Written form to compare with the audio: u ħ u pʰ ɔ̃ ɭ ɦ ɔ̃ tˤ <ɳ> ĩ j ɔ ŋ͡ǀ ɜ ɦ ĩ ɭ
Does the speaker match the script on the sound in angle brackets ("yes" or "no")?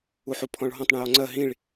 yes